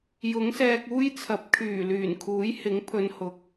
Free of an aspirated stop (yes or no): no